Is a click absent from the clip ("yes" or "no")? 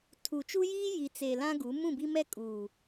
yes